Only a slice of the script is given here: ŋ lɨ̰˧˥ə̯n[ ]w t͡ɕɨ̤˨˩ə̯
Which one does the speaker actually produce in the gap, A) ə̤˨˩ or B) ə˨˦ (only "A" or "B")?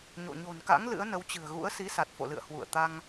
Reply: B